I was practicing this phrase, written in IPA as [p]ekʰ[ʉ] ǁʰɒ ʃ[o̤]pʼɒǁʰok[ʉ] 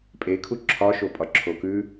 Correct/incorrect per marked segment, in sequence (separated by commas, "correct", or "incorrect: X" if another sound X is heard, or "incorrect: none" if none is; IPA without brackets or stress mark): incorrect: pʼ, incorrect: u, incorrect: o, correct